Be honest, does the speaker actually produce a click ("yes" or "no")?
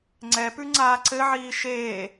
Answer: yes